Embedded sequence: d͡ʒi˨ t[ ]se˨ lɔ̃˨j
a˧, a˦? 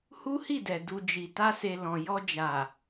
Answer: a˧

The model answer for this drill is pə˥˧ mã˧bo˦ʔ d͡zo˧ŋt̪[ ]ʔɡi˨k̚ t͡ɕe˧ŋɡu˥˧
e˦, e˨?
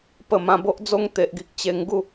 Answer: e˨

